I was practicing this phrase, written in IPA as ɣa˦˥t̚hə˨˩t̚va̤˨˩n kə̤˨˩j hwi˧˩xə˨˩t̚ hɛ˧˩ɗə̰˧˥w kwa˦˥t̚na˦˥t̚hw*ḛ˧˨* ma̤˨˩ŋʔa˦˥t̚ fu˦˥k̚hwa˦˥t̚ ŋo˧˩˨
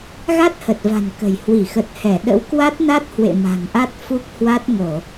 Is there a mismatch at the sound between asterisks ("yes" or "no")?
no